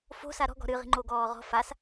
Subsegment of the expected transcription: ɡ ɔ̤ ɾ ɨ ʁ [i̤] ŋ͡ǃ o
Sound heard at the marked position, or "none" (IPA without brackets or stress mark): i̤